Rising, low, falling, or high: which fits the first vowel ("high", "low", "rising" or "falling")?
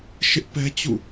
high